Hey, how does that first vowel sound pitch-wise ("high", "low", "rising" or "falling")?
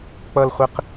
low